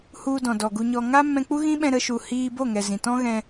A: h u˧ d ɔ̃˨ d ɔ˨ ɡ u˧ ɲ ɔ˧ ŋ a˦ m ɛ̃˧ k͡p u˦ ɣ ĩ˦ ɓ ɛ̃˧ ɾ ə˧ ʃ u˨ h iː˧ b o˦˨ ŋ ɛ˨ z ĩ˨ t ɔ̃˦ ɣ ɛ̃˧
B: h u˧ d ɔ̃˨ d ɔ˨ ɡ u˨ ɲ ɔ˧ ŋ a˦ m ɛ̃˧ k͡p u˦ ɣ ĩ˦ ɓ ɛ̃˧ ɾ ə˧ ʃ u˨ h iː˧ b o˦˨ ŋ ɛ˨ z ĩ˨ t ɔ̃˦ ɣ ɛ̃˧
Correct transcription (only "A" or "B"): A